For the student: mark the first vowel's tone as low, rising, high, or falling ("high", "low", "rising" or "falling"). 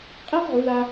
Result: high